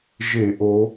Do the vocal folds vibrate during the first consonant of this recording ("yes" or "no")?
yes